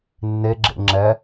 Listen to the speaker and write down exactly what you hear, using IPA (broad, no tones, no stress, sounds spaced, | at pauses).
nː e ɡ͡ǁ ḛ ŋ͡ǁ ɛ